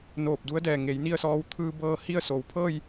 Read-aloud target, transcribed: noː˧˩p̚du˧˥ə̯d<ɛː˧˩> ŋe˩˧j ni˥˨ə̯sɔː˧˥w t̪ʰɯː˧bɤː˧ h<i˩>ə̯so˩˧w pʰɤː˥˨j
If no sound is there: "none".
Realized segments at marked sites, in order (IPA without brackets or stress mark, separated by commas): ɛː˧˩, i˥˨